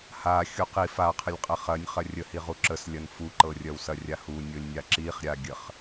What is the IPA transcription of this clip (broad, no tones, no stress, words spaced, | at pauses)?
ha xʲuqi fa qʰəlʲqʼəχɐnʲ χɐrʲəhiʁu ǁəslʲɐn fuǃɤrʲɐw sɐrʲahu nʲɤlʲnʲaǁiχ ɾʲaɡʲəχ